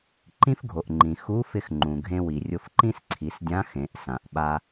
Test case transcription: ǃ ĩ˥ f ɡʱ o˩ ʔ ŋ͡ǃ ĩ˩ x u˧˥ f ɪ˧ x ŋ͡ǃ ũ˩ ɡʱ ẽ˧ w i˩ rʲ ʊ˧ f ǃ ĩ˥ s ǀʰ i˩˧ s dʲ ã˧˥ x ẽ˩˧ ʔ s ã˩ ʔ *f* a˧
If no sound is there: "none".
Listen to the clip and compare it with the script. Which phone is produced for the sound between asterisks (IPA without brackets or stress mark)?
ɓ